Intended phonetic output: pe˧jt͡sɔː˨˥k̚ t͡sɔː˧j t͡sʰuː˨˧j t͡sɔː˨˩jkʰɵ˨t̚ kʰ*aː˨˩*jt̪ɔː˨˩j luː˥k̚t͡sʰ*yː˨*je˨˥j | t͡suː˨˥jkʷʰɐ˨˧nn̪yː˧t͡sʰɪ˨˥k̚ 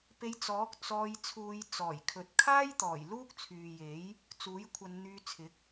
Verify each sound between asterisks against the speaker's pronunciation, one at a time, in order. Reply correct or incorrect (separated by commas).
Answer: incorrect, correct